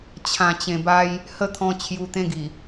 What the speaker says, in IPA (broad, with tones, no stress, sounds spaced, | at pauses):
t͡ɕʰ ã˨˩ t͡ɕ ẽ˨˩ b a˦ j | h ə˥˧ t̪ʰ ɔ̃˧ t͡ɕʰ j u˧ t̪ ẽ˦ ɡ i˨˩